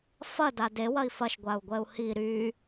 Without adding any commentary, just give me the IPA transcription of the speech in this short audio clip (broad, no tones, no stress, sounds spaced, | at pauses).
f ɐ d a d e w ɐ i̯ f ɐ ʃ ɡʷ a u̯ ɡʷ ɛ u̯ h i ɾ y